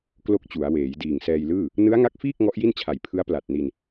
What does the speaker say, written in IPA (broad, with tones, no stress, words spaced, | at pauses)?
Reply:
klo˥˩k̚t͡ɕu˩˦a̯ weː˩˦j diː˨˩ŋsɛː˧jlɯː˥˩ | nɯ˦˥a̯ŋa˦˥k̚fiː˥˩k̚ ŋɔ˦˥ʔji˥˩nt͡ɕʰa˨˩j pʰɯ˦˥a̯pla˨˩t̚ni˧n